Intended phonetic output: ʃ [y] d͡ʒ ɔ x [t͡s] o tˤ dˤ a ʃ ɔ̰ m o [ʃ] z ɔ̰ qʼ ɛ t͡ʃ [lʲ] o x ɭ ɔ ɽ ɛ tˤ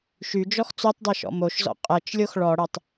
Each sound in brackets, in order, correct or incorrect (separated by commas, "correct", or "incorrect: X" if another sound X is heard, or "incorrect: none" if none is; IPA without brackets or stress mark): correct, correct, correct, correct